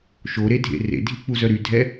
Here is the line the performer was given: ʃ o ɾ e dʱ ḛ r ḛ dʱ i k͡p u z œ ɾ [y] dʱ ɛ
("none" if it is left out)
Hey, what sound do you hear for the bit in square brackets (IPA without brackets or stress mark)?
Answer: y